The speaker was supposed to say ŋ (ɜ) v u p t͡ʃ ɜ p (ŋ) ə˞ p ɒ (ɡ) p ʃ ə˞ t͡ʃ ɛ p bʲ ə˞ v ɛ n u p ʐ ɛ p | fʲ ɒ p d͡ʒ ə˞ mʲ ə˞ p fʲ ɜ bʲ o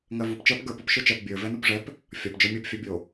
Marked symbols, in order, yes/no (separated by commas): yes, no, no